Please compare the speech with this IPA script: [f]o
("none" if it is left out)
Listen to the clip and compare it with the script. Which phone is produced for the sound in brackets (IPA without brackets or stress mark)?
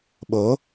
ɓ